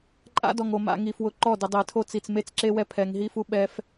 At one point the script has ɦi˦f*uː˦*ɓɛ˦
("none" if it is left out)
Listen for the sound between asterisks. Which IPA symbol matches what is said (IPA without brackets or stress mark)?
u˦